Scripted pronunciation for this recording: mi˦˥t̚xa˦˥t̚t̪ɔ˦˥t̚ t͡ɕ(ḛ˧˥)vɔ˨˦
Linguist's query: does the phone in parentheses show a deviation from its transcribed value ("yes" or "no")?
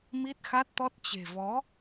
yes